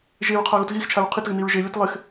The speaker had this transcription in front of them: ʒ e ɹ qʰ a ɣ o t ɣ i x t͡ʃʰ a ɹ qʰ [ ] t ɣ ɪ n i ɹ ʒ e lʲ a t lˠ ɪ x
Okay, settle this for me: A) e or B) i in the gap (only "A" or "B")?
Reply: B